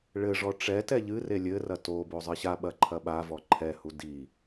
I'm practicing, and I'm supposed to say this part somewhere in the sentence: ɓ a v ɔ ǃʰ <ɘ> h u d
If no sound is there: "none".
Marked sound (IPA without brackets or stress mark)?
ɛ